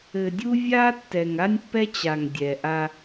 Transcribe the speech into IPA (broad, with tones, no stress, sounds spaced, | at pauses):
ɘ˨ dʲ u˦ vʲ a˦ tː ɛ˨ ŋ a˦ nʲ pː ɛ˦ t͡ɕ a˨ ŋ dʲ ɛ˨ ʔ a˦